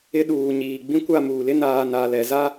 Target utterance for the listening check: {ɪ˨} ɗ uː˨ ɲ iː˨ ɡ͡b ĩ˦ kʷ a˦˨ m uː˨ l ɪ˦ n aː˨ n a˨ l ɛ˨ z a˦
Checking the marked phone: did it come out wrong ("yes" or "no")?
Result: yes